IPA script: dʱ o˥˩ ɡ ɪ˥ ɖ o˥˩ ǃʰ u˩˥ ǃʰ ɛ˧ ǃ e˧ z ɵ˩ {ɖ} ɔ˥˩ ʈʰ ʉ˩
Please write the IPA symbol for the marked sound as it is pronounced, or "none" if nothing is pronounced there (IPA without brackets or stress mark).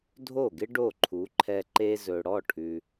ɽ